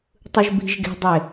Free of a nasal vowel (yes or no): yes